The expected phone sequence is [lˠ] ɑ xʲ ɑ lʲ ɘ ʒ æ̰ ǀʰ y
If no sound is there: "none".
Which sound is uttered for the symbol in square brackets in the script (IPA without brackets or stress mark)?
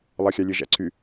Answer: lˠ